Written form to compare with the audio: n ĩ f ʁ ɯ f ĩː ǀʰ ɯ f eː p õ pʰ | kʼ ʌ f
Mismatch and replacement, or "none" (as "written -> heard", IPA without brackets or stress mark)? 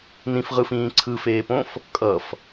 pʰ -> f